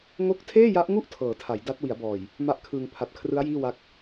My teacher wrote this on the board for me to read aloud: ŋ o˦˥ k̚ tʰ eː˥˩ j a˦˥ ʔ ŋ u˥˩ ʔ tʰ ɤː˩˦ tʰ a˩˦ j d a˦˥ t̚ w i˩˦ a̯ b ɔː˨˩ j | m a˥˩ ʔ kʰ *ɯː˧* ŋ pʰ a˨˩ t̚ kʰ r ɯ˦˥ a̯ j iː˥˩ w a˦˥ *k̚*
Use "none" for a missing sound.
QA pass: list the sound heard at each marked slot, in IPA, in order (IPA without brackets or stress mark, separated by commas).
ɯː˧, k̚